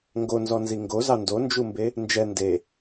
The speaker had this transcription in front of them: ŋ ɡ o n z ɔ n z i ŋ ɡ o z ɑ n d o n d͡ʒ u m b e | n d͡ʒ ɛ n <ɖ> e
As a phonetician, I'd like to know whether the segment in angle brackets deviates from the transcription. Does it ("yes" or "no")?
yes